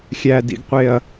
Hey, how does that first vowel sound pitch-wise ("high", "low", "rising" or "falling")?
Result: low